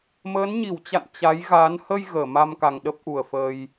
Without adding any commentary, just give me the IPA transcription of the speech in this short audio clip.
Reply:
məː˨˦nɲi˧˩wt͡ɕa̰˧˨n t͡ɕa˨˦jɣa˨˦n hə˧j ɣəː˧˩ma˧mka˨˩ŋ ɗə˦˥p̚ʔu˨˩ə̯fəː˧j

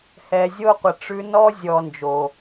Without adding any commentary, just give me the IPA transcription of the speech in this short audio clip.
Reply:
hɛ˨zʲo˦qʷə˨ ʈ͡ʂʉ˧nɔ˦ zʲɔ˨ nd͡ʒo˨

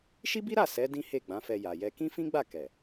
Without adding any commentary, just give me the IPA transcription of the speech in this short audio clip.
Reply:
ʃi˦bi˦ɾa˦˨ sɛ˨˦ dĩ˦he˦˨ɡ͡bã˨˦fɛ˧ ja˨jɛ˧ kĩ˦fĩ˦ɡ͡ba˦˨ kɛ˨

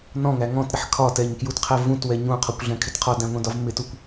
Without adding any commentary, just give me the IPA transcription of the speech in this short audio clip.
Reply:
nɔ̃ŋæ ŋɔ̃tɾɪħ kʰɒtɛɲkjutqʰɛ vũtwɛ ɲũqʰɔkʷɮɛ̃kʰɪt qʰɔdæ̃ŋʷɛ̃dɒv mɪtukʷ

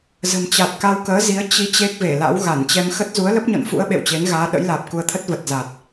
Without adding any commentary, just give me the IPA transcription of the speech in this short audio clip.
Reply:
zə̤˨˩mt͡ɕa˨˩t̚ka˧wkəː˨˦ zi˨˦ə̯ t͡ɕi˨˦ t͡ɕe˦˥k̚ve˧˩la̰˧˥w ɣa˧˩nt͡ɕɛ˧m xə˦˥t̚ zu˨˦ə̯lə˦˥p̚ɲɔ̰˧˨nfṵ˧˥ə̯ ɓḛ˧˨wt͡ɕe˨˦n ɣaː˨˦ɗə̰˧˥j laː˨˩p̚ku˧ə̯t̪ʰə˦˥t̚ və˨˩t̚za˨˩t̚

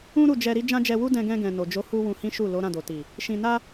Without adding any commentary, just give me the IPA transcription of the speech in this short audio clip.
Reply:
ũ˦ ɾu˦˨d͡ʒɛ˧ ɾi˦d͡ʒã˦d͡ʒɛ˧wu˦ dɛ̃˧ɡɛ̃˧ɡɛ̃˨ no˨d͡ʒo˨˦ hu˦wũ˧hĩ˦ʃu˦˨ lo˨˦ ɾã˦˨do˨ti˨ | ʃĩ˧ na˦

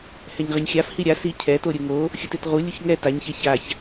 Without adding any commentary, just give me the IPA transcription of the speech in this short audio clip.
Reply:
hɛɲʁɛɲxʲaf hiɾʲa si cʰɛto ɾʲɯŋo | xʲutetʁu lʲuçŋɛ taɲçe çaç

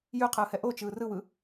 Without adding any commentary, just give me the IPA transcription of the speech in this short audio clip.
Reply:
jʉqʰɯːhɛ ʔot͡ʃɯː rɯwɯ

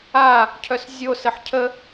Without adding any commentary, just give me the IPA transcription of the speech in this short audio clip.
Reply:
a | cʰœszʲosəħ cʰə

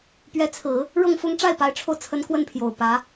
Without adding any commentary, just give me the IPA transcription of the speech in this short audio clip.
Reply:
pɥɛ˧˥t͡sʰɹ̩˨˩˦ | ɻɤ˥˩ŋfʊ˥ŋ ʈ͡ʂa˥˩ɪ̯pa˧˥ɪ̯ʈ͡ʂʰo˧ʊ̯t͡sʰə˧˥n kwə˥˩npʰjo˨˩ʊ̯ pä˧˥

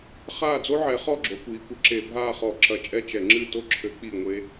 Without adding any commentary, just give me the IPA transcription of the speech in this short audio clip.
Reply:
χaː˦˨d͡zo˦ʕɛ˨˦χɔ˦˨ ɡ͡ǁo˨˦kʷiː˨˦kʷɘ˨˦ ǁe˧˩˧ bʱaː˦˨χɔ˧˩˧ǁɐ˧˩˧t͡ʃʼɛ˦˨ t͡ʃɛ˧˩˧ŋ͡ǁɨ˦˨to˦ ǁʰɘ˨˦ k͡pi˦˨ŋʷe˦

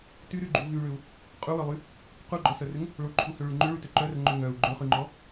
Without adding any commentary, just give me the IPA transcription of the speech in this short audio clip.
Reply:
tyɾyɡ͡ǃu vyɭʏu̯ | qʼuwœlˠy | quɡ͡ǃɔsœrʏŋ | ɭoǃʰuhøɭy ŋ͡ǃʏɭytø ǃœrŋ͡ǃʏ ŋœu̯ ɡ͡ǃøχyŋ͡ǃɔ

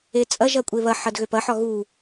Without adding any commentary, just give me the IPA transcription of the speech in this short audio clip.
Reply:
et͡sʼɐʒɐ kʷʼeβɐħɐd ɣøpɐħɒ ɣu

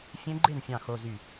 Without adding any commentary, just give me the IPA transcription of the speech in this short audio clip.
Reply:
fʲẽ˧˥ɡ͡ǃe˥˩nfʲɑ̃˧˩ xo˧˥˧zy˥˩

